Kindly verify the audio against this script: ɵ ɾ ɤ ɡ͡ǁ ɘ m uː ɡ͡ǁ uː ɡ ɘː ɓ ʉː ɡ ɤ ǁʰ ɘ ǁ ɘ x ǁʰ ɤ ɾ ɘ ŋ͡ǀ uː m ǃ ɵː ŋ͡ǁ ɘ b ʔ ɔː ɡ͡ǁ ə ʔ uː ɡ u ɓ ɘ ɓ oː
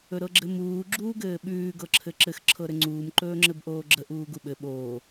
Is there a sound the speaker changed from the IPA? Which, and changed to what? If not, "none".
ɔː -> oː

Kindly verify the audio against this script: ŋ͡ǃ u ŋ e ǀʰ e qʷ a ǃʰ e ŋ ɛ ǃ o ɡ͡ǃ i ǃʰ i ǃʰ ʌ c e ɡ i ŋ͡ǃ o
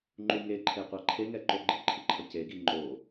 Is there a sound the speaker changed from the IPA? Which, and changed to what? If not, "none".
ǀʰ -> ǃʰ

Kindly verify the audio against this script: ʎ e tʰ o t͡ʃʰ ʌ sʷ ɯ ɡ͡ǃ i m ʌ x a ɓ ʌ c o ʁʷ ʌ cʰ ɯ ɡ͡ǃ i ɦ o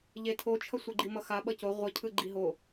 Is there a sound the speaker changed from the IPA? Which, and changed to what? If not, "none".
none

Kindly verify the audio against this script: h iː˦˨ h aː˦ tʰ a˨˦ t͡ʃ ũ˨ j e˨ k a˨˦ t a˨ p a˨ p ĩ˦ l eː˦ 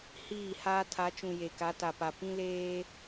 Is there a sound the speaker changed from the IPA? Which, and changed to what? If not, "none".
none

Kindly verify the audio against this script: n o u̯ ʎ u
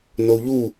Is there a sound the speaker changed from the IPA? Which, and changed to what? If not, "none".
none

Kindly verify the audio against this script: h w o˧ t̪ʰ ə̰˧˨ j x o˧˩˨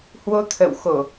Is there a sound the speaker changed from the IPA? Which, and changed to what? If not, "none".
j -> w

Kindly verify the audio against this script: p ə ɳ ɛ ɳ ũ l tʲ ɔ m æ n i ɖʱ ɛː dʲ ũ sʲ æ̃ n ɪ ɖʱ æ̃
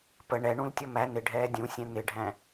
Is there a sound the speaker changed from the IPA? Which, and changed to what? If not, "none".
i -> ɪ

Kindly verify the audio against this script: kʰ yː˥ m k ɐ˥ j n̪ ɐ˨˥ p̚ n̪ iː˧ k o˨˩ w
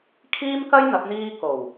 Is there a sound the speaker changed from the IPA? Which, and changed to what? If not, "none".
yː˥ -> iː˥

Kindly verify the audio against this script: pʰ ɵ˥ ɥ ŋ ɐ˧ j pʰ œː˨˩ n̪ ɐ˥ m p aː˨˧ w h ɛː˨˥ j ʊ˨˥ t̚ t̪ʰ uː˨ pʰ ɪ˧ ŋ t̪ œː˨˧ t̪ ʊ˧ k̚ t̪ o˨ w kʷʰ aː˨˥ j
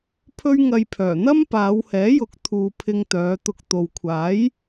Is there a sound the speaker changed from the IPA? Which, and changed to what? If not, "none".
t̚ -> k̚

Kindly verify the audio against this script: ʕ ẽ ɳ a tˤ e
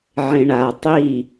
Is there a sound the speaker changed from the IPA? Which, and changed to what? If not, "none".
e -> i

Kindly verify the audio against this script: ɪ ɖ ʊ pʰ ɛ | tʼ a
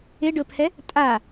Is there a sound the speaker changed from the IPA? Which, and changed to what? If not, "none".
none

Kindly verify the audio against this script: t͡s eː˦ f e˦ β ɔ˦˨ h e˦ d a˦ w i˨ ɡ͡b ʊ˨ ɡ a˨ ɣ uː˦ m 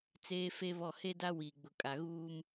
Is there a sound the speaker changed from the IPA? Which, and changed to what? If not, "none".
ɡ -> kʼ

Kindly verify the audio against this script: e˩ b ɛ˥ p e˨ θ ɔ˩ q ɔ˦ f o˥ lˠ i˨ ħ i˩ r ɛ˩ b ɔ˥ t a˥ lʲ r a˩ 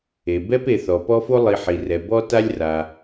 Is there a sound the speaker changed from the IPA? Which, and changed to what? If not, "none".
q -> p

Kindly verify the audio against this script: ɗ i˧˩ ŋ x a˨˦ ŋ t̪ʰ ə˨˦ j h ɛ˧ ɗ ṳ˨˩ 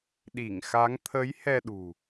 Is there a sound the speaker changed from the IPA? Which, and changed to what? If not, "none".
none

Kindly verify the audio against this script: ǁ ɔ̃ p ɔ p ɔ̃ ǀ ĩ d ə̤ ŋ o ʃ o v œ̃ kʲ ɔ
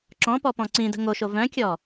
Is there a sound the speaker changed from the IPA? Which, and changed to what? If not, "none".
none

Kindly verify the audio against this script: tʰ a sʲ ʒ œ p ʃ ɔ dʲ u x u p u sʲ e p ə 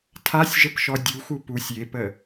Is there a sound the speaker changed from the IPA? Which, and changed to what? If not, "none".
œ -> ə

